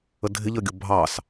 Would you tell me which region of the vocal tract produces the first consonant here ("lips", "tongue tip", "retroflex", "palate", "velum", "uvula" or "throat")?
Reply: tongue tip